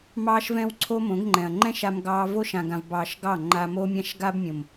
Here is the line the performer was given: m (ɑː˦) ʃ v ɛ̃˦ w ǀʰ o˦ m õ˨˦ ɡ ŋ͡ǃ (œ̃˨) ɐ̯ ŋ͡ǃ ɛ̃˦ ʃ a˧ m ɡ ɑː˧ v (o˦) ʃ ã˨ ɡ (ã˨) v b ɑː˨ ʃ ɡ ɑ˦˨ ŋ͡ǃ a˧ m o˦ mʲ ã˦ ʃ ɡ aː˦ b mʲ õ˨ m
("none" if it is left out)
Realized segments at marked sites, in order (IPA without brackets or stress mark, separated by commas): ɑː˦, ɛ̃˨, o˦, ã˨